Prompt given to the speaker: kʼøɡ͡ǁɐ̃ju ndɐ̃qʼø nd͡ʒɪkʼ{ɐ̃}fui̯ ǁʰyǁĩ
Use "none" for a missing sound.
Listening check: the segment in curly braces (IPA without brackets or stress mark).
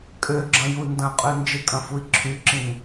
ɐ̃